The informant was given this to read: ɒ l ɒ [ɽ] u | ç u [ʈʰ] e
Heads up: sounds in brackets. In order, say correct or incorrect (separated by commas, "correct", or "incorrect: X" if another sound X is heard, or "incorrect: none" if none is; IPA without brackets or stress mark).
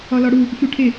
correct, correct